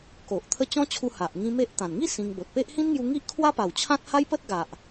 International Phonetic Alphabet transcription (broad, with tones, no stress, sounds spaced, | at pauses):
k o˨ ʔ t̪ʰ ə˦ t͡ɕ ɔ̃˦ t͡ɕʰ u˧ h a˨ ʔ ŋ ĩ˧ m e˦ ʔ t̪ ã˨˩ n ŋ i˥˧ s ĩ˧ ŋ b o˨ t̚ p e˦ ʔ h ĩ˦ n ŋ j u˧ ŋ i˦ ʔ kʰ w a˦ p a˨˩ w t͡ɕʰ ã˦ t̚ h a˦ j p ə˦ t̚ ɡ a˨ ʔ